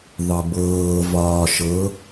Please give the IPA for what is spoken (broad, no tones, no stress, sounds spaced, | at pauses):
ðˤ ɤ b ɤː v ɒː ʃ ɤ